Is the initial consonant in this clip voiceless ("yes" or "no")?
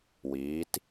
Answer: no